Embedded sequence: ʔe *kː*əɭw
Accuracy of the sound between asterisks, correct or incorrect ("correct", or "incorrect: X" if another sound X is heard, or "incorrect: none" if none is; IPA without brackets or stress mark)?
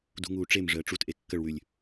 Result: correct